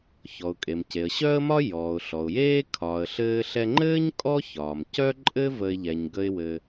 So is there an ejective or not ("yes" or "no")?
yes